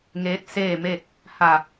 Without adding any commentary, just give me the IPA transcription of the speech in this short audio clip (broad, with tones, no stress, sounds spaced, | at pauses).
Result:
ŋ eː˧˥ t̚ s eː˥˨ m e˥˨ t̚ | h a˧˩